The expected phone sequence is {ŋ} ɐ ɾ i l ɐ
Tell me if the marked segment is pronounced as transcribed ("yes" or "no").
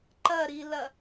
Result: no